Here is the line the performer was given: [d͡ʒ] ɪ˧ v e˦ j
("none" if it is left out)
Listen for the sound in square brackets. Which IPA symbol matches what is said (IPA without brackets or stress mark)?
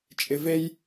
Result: t͡ʃʼ